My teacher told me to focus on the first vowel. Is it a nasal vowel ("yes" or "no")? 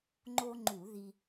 no